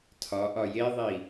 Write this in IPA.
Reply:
tʰɒʔɒ jeðˤi

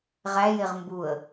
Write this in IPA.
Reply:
ʁæjeʁ mbuə̯

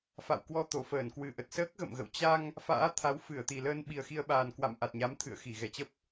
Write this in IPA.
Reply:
fa̰˧˨wkwɔ˧ t̪o˧˩fəː˧˩nkwɨ˨˩ʔə˨˩t̚ səː˦˥k̚ɣə̰˧˨mɣə̰˧˨w t͡ɕa˧ŋ | fa̰ː˧˥t̪ʰa˨˦w fɨ˧˩ə̯t̪i˨˩ləː˧n ɓi˨˩ə̯xi˧ə̯ɓaː˨˩n kwa̰˧˨m ʔa˨˩t̚ɲa˨˦m t̪ʰɨ̰˧˨ə̯xi˧˩ ɣɛ˧˩t͡ɕə˦˥p̚

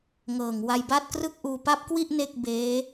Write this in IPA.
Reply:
ŋɤː˨˩ŋ wa˧jba˥˩t̚krɯ˥˩k̚ʔuː˧ pa˦˥p̚kwi˥˩ʔ ne˥˩k̚beː˦˥

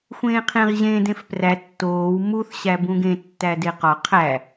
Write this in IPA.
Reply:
xʷẽːqʰẽʁ ʑẽ dẽfpræ tːoːw muθ ɕæbũɡẽ tːædeqɒ qʰæ

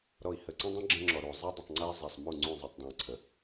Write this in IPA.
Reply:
ɾɔ˨i̯hə˨ ǀə̃˦dˤə̃˦ ɡ͡ǁə̃˦ŋ͡ǁɔ˨ɾu˨ zˤi˦dˤə˨tˤŋ͡ǀe˦i̯ zˤa˨sˤmu˦˨ ŋ͡ǀũ˦˨zˤi˨tˤdˤũ˨i̯ǀʰə˨

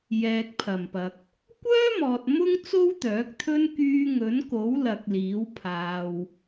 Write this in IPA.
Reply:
jɛː˨k̚pʰɐ˨˩mpɐ˨k̚ | kʷœː˥mɔː˨t̚ mʊ˥ŋ t͡so˥wt̪œː˨˥k̚ t̪ʰɵ˥n kyː˧ŋɵ˨˥nko˨˥wlɐ˨k̚ liː˨˥wpʰaː˧w

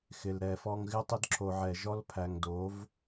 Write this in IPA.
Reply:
xɪ˨lɾɛ˨fɔ˦ŋ ɣɪ˦tˤɪ˦d ǁʰo˨ʕɛ˨ʒɔ˦l pʰæ˨ŋdo˨˦v

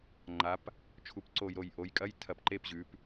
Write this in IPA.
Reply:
ŋ͡ǃa˩˧p | t͡ʃʰu˩˧pǀo˧˩j ɾo˧˩jʔo˩˧jkʼɐ˧˥˧j tʰɐ˧˩pǃe˧˥˧pʑʉ˩˧p

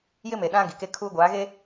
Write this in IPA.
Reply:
jɪ˦me˨ ɗã˦ ɡi˨ke˦ kʰuː˦ɡʷaː˨˦ɣe˦

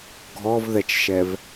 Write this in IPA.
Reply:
ɡʱɔvðɛt͡ʃʃɛv

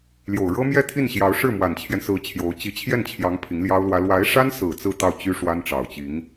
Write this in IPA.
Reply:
ljo˨˩ʊ̯ɻɤ˥mjɛ˥˧ t̪ʰi˥˩nɕjɑ˧˥ʊ̯ ʂɻ̩˥˩mwa˨˩nt͡ɕʰjɛ˦nsɹ̩˧˥ t͡ɕʰjo˧˥ʊ̯ t͡ɕi˧˥t͡ɕʰjɛ˥˩nt͡ɕʰjɑ˧˥ŋ pʰi˧˥ŋljɑ˥ʊ̯lwä˥ lwa˧˥ɪ̯ʂa˥nsɹ̩˨˩ t͡sɹ̩˥˧t̪ɑ˥˩ʊ̯t͡ɕy˥ ʂwa˥nʈ͡ʂɑ˨˩ʊ̯t͡ɕi˧˥ŋ

